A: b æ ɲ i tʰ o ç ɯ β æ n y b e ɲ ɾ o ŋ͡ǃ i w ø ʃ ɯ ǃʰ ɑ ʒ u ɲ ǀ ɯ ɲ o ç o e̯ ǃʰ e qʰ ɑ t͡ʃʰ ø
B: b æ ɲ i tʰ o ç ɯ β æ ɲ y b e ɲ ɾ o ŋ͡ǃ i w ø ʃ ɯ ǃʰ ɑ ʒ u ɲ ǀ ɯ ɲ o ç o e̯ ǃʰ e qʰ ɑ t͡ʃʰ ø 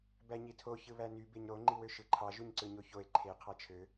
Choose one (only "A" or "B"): A